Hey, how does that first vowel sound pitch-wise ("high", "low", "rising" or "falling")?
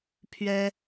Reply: high